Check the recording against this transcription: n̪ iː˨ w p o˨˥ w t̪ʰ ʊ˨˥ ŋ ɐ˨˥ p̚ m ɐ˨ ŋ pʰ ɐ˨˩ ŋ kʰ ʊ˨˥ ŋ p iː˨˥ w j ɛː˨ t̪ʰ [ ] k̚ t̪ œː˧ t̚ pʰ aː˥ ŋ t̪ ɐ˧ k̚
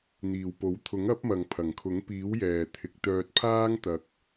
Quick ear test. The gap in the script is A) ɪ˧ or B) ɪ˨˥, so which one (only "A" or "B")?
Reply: B